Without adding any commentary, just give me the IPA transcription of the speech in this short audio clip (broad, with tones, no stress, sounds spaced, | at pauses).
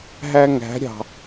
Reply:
ɦ æ˦ ŋ æ̤˨˦ ɾʲ ɑ̤˨